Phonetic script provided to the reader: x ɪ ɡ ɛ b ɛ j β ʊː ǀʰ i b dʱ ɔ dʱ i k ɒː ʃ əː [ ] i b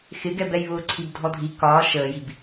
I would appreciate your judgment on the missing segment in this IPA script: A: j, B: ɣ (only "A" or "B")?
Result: A